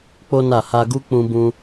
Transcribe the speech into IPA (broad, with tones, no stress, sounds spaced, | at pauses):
k͡p o˦ n a˦˨ h a˧ ɡ u˦ k͡p ũ˦ b ũ˦